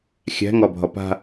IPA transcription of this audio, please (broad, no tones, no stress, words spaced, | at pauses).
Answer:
xʲæ̤ŋɒbʱɒ pa̤